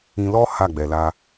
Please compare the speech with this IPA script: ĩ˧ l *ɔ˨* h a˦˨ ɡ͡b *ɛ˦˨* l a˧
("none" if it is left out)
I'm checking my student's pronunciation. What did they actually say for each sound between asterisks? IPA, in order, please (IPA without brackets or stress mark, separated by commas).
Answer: ɔ˦, ɛ˨